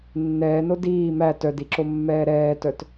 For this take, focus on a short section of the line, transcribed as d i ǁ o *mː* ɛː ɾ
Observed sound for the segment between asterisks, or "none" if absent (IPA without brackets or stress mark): mː